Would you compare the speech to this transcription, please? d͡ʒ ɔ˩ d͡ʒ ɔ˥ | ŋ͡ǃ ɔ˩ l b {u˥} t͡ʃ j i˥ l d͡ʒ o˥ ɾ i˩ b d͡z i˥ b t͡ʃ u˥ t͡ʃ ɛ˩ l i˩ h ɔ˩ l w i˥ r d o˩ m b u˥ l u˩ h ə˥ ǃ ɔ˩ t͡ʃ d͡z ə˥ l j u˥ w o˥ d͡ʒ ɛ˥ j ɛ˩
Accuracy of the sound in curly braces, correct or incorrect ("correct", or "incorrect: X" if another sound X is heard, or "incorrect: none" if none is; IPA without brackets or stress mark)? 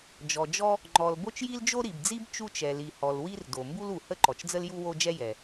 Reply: incorrect: o˥